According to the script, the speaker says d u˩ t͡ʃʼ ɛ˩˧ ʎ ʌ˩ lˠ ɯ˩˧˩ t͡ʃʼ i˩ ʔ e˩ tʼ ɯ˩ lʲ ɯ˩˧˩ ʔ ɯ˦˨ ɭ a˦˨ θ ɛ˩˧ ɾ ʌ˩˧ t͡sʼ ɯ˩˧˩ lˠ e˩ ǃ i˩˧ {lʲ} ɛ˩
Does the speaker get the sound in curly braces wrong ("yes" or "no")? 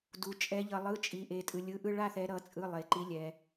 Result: no